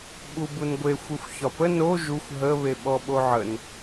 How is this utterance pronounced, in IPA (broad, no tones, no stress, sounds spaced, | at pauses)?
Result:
ɓ u b u n ɡʷ e xʷ e xʷ ç ɒ p ə n o ʒ u xʷ ɦ ə β e ɓ ɔ ɓ o ʕ ə n